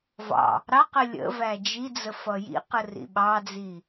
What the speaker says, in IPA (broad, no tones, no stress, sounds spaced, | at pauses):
v ɑ̰ | ɾ ɑ q ə lʲ ə̰ v æ d͡ʒ i d͡z ə f ʌ j ḭ q ə r ḭ ɓ ɑ d͡z i